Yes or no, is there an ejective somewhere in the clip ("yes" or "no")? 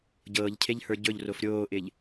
no